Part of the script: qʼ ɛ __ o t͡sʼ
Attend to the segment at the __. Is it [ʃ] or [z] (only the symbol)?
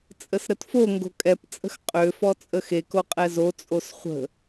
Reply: z